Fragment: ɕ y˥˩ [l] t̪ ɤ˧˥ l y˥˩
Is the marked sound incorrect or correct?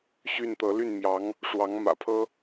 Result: incorrect